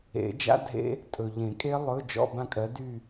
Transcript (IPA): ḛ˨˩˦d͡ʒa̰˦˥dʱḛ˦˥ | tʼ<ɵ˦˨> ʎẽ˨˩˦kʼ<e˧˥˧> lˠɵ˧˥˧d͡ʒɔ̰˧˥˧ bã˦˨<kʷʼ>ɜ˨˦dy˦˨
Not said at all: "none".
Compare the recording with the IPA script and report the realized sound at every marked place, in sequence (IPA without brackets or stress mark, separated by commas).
ɵ˨, e˦˥, kʼ